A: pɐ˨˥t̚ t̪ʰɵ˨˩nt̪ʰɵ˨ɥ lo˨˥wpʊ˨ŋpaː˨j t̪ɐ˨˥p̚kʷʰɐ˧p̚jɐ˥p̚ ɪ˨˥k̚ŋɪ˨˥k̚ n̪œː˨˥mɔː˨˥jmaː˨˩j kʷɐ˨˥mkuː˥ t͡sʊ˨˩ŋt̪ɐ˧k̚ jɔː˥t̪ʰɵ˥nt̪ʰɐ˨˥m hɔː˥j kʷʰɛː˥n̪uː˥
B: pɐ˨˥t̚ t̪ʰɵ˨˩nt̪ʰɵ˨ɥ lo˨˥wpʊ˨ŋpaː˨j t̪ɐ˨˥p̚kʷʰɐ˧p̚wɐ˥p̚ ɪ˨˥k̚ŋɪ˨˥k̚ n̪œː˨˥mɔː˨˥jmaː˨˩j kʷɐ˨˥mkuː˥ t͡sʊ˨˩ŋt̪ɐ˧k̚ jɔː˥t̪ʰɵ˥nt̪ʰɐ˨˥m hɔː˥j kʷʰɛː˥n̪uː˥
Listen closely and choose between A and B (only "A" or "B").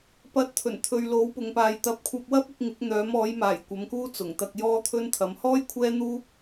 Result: B